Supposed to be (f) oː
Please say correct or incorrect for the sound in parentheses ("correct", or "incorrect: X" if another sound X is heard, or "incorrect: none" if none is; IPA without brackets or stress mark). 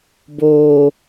incorrect: b